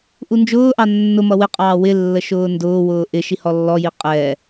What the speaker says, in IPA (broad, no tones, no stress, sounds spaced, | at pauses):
ʔ u n d͡ʒ ʊː ʔ ɑ nː ʊ m ʌ w ɪ qʼ ɑː w ɪ lː ə ʃ ʊː n d ʊː w ʊː ʔ ɪ ʃ i h ɔ lː ɔ j i qʼ ɛ